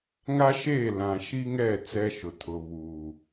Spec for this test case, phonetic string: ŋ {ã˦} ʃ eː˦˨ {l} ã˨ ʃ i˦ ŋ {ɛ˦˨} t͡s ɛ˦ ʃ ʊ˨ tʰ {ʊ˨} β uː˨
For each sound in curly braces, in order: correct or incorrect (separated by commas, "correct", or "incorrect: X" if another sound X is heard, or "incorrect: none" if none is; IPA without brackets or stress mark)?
incorrect: a˦, correct, correct, correct